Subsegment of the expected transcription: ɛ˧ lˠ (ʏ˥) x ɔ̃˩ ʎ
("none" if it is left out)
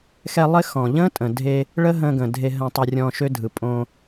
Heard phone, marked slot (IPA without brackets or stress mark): ɪ˥